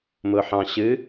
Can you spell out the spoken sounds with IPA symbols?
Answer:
m ʊ ħ ɑ̃ ɕ ɨ

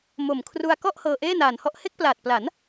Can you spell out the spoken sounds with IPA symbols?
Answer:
m o˨˩ m kʰ r u˧ a̯ k ɔ˥˩ ʔ h ɤː˧ ʔ eː˥˩ n aː˨˩ n h ɔ˥˩ ʔ h e˥˩ k̚ p l aː˨˩ t̚ p l a˩˦ n

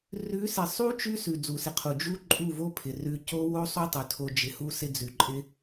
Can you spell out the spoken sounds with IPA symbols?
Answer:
r ʉ˨˦ s ɪ˨ sˤ u˦ t͡ʃ ʉ˦ s ʉ˨ d͡z u˨ s ɪ˨ qʰ u˨ d͡ʒ u˦ ǃʼ u˦˨ v o˦ pʰ ɪ˨ r ʉ˧ c o˦ w o˦ sˤ u˦ tˤ ʉ˨ tʰ o˧ d͡ʒ ɪ˨ h u˧ s ɪ˧ d͡z ʉ˨ ǃʼ ɪ˦

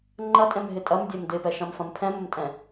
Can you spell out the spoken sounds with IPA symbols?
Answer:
ŋ͡ǃ ɐ tʼ ɛ̃ m ɦ ɪ tʼ ɐ m dʲ ɛ m d ɪ p ɛ ʃ ɐ̃ m f ɐ̃ m pʰ ɛ̃ m ə m tʼ ɛ̃

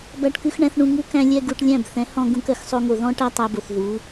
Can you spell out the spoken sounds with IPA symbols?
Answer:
b æ˧ ʈ k ʉ˧ x ɳ æ̃˧ θ ɳ ũ˧ ŋ u˦ k æ̃˦ lʲ ɛ˦ ɡ u˧ ʈ lʲ æ̃˦˨ b θ ɛ̃˨˦ h ɔ̃˧ ɡ ũ˧ k ɜ˧ x sˤ o˧ ŋ o˨ ð ɔ̃˦ ʈ æ˦ tˤ æ˧ b o˨ θ ð u˨˦

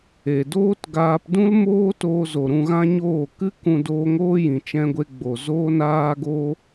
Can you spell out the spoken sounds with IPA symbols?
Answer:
e˨ d oː˦ t ɡ aː˧ p d ũ˦ l m oː˦ t oː˧ z o˨ ɾ ũ˧ ɣ ã˦ ɲ oː˦˨ k ɨ˦ k ũ˧ d oː˧ ŋ oː˦ j ĩ˨ t͡ʃ ɛ̃˧ ɡʷ e˧ ɡ͡b o˨ z oː˧ n aː˧ ɡ o˧

